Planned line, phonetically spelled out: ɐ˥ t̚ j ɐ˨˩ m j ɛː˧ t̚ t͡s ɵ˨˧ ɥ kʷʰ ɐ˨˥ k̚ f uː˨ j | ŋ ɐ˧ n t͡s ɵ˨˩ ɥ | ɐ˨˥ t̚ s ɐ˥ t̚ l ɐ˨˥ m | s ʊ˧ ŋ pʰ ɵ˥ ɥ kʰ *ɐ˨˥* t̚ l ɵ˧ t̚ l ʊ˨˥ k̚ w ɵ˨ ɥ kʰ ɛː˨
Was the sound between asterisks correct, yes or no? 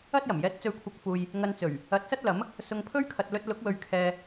no